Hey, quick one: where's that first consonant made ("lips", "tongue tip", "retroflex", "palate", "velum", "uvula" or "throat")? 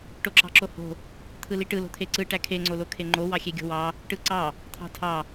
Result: retroflex